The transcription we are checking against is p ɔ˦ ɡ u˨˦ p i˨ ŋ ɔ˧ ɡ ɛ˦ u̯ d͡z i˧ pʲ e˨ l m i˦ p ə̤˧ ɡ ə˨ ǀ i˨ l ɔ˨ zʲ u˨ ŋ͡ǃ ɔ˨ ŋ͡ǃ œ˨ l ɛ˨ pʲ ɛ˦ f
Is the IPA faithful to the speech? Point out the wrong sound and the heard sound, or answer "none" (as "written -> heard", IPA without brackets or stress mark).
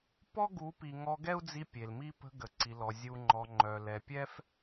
none